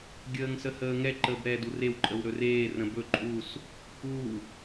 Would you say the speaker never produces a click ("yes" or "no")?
no